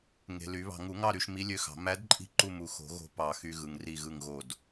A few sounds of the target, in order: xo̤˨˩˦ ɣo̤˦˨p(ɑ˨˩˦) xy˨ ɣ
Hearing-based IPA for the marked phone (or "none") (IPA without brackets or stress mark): ɑ˨˩˦